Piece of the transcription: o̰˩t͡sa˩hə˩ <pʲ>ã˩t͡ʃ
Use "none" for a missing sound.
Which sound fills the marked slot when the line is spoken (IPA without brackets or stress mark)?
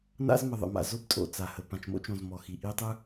p